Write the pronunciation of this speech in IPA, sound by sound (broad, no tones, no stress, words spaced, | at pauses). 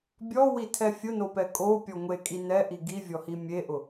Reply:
bʲɔwitʰɛ fʲʊnopɛ kʼopʲɔ ŋʷekʼi nɛʔi ɡivʲɔhi mʲeʔʊ